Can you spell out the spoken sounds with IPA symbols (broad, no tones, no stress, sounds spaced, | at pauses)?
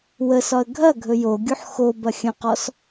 w ə s ɒ ə̯ ɡʱ ɐ ɡʱ ɵ j o ɡʲ u ħ x o b ɐ xʲ ə̃ q ɔ s